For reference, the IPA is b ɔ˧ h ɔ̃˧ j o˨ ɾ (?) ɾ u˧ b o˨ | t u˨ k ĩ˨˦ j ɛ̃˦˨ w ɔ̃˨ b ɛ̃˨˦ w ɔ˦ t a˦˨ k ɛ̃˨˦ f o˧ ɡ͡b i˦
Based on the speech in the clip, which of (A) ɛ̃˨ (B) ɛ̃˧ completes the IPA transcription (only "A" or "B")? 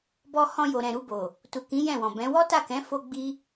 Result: A